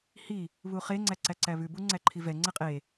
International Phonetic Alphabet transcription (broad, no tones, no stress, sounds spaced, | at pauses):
h i | β u χ e ŋ͡ǀ æ ǀ æ ǀ æ β ʉ b u ŋ͡ǀ æ ǃʰ i v ɛ ŋ͡ǀ ɛ qʼ e